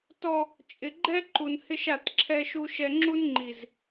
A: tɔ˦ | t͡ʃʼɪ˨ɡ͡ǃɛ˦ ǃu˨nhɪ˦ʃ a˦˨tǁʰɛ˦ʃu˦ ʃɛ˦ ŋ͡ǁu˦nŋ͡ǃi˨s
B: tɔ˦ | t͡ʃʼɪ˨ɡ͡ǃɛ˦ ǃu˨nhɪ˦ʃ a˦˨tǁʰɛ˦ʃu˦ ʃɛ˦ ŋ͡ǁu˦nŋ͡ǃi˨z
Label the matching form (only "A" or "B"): B